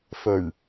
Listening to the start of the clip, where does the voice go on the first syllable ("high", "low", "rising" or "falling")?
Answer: low